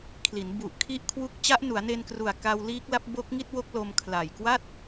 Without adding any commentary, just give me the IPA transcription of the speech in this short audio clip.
kʰli˩˦nbu˨˩ʔ kʰi˥˩ʔkʰwu˥˩k̚ t͡ɕa˦˥ʔnu˩˦a̯ne˧nkru˨˩a̯ ka˧wliː˦˥k̚la˦˥p̚ bo˦˥k̚ŋi˥˩t̚wo˦˥k̚lo˧m kʰla˨˩jkwa˥˩t̚

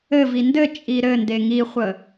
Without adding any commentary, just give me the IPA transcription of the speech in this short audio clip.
ɘvi ndɘ t͡ʃʼiɾɘnde ŋiχʷə

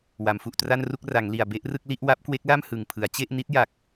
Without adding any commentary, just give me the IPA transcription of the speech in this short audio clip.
wa˩˦mfu˨˩ʔtra˥˩nru˥˩k̚ ra˩˦ŋli˨˩a̯ be˥˩ʔrɯ˥˩k̚li˥˩ʔ wa˦˥p̚kwe˦˥k̚la˥˩m hɯ˨˩ŋpʰɯ˩˦a̯ t͡ɕe˥˩ʔni˦˥t̚ja˨˩k̚

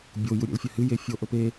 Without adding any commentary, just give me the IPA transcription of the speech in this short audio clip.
bʲo juɾʲḛlfʲɐhɨ jefʲo ʔɵpe

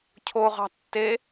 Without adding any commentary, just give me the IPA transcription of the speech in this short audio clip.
cʰoʁɑ̤ tːe

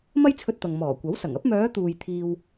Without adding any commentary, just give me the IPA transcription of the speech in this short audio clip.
mɐ˥jt͡sʰɵ˧t̚t̪ɐ˨ŋ mɔː˨˩kʷɐ˨˥wsɐ˨˩ŋɐ˥p̚ mœː˨˧t̪uː˨j t̪ʰiː˥w

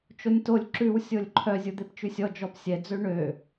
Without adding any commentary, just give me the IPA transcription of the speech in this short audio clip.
t͡ʃonʲtolʲ ǁʉw sʲolʲǃʰœ zʲud̪ept͡ʃʉsʲɔ d͡ʒɔpsʲɛ d͡zøɳø

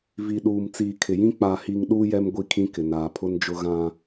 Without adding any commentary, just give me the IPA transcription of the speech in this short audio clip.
vi˨ ɗuː˨mt͡siː˨kʰɪ˨jĩ˦ k͡pa˨hi˨ŋ ɗuː˦ jɛ˦mɡʷi˦˨kʰĩ˦kɪ˨ naː˨pʰʊ˦nd͡ʒʊ˦ ɣã˦

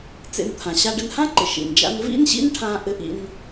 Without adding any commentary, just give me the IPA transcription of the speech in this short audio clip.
t͡sḛ˧nt̪ʰã˩ ɕa˧ɖɘ˧nhã˥ǃɘ˩ ʃḭ˩nd͡ʒa̰˥n vḭ˥nɕḭ˥nʈʰã˧ ʔɘ˧ʔḭ˧n

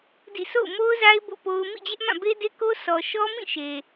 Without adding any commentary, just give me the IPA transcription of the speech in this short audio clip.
dḭ˦˨ so̰˦˨ʊ̯ mo˦ʊ̯za˦ɪ̯ bo̰˦˨po˦ʊ̯ mḭ˦˨d͡ʑɛ˦ʔmã˦˨ be˦de˦ko˦sɔ˨ ʃɔ˦mĩ˦˨ʃe˨

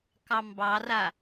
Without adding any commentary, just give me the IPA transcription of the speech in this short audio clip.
kɑmbɑra

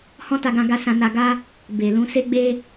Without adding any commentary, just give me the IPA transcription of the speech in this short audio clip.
hɔ̃˦ta˧ɡã˧ɡa˧ sã˧na˧ɡa˦ | be˨lũ˨˦ se˧ɡ͡be˧

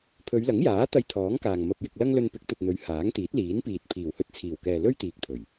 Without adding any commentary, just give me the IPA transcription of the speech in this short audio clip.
pʰɵ˨˧ɥlɐ˨˥ŋjaː˨˥ t̪ɐ˧jt̪ʰɔː˨˥ŋ kaː˨ŋmɐ˧p̚jɪ˧k̚lɐ˥ŋ lɵ˧npɪ˨˥k̚t̪ɵ˨t̚n̪ɵ˨˥ɥ haː˨˥ŋt̪iː˨˥t̚liː˨˥npiː˨t̚ pʰiː˨˩whɵ˧t̚t͡sʰiː˨˩wkɛː˨ lɵ˥ɥt̪iː˨k̚t̪ʰɵ˨˩ɥ

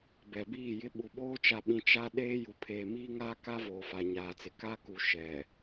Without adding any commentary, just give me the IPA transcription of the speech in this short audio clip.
bɛ˨biː˦˨jɪ˦ ɓu˨ɓoː˦ t͡ʃa˨ɓĩ˨ t͡ʃa˦ ɗeː˦ju˨ pʰeː˨miː˦ŋaː˦ ka˦ voː˨fa˨ɲaː˨t͡sɪ˨ ka˦ku˨ ʃɛ˨

